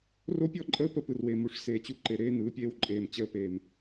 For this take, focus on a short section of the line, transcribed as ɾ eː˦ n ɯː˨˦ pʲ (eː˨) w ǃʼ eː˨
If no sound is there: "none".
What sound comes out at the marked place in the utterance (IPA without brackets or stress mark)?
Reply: eː˦